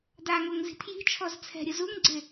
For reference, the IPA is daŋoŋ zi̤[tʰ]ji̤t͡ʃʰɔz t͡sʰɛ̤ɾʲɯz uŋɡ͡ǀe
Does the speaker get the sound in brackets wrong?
no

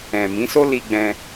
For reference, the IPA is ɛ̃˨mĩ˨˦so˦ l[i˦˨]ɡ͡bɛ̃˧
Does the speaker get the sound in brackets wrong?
yes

